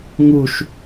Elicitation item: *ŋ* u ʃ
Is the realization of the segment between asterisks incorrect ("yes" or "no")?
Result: no